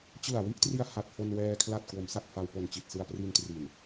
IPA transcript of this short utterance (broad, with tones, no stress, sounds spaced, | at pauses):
t͡ɕ ɯ˨˩ a̯ w i˥˩ ʔ t r i˧ a̯ h a˨˩ t̚ f o˧ n w ɛː˧ kʰ l a˨˩ t̚ k w o˩˦ m s a˨˩ k̚ f a˧ w p o˨˩ n t͡ɕ i˨˩ t̚ s ɯ˧ a̯ p r i˧ n t r i˨˩ n